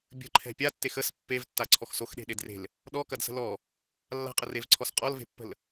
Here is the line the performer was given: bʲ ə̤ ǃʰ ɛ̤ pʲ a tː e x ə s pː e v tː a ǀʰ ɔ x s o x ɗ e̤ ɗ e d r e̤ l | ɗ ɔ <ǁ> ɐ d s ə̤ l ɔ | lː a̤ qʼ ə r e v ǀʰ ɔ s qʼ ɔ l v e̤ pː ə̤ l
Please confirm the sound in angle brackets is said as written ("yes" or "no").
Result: no